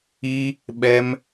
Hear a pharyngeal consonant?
no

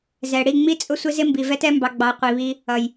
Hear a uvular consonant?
yes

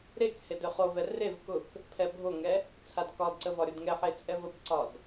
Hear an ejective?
yes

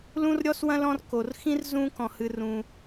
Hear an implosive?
no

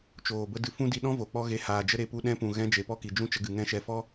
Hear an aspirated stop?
no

